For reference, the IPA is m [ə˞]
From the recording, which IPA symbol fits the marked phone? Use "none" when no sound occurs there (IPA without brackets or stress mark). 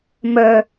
ə˞